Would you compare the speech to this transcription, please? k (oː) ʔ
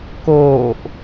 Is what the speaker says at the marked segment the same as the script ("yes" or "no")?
yes